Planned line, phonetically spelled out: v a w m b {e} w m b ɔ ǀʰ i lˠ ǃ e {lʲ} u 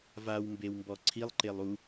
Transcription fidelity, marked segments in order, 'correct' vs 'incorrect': correct, incorrect: lˠ

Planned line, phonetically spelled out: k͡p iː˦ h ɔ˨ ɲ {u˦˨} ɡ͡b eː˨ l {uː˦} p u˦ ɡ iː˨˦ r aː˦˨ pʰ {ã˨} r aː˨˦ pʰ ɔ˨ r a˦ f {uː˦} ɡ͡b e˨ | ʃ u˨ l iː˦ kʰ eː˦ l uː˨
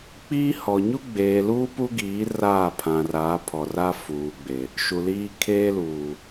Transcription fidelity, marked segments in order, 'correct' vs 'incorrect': incorrect: u˦, correct, correct, incorrect: uː˨

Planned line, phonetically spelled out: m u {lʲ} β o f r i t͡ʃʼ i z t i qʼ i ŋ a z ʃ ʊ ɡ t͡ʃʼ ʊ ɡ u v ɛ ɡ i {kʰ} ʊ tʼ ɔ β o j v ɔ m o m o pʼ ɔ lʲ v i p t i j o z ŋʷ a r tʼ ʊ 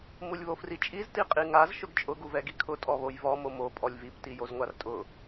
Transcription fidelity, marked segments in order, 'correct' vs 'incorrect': correct, correct

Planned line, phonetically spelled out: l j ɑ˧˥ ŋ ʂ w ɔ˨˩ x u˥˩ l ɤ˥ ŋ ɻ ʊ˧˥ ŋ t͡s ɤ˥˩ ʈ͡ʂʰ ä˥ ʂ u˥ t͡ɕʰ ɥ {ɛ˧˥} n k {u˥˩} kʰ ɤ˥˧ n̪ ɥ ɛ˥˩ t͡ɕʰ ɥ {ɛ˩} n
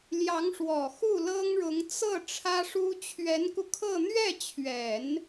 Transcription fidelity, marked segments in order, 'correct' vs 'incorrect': correct, incorrect: u˧, incorrect: ɛ˨˩˦

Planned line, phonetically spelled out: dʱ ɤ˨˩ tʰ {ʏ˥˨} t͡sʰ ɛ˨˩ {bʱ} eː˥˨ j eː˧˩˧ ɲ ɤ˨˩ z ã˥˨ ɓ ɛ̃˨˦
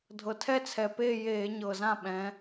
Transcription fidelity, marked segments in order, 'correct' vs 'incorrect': incorrect: ɛ˥˨, incorrect: p

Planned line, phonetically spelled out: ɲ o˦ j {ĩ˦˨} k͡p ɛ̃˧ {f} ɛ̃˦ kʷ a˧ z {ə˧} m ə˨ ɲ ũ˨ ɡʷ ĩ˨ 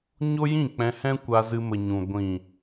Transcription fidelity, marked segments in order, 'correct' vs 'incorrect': correct, incorrect: h, incorrect: ɨ˧

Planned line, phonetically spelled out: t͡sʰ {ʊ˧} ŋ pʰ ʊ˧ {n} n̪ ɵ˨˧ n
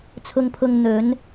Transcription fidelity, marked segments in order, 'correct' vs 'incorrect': correct, incorrect: ŋ

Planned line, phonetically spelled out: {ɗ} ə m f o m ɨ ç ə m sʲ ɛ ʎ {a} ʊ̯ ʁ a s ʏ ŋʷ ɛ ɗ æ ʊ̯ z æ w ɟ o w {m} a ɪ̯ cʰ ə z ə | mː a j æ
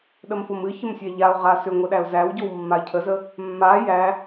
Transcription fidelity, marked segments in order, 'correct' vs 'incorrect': correct, correct, incorrect: mː

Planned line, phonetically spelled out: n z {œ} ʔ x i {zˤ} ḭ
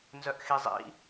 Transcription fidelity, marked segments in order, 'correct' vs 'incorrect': correct, correct

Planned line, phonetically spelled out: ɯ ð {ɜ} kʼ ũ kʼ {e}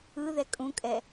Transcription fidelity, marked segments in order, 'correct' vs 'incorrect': incorrect: ɛ, incorrect: ɛ

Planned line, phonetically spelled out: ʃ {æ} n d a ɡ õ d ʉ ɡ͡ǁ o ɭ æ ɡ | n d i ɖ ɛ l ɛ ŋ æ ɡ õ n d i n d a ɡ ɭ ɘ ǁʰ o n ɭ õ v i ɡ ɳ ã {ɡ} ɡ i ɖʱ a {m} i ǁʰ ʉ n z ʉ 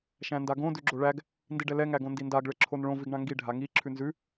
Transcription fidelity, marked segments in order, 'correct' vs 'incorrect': incorrect: æ̃, incorrect: ŋ, incorrect: ŋ

